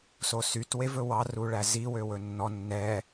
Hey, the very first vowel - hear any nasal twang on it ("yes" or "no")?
no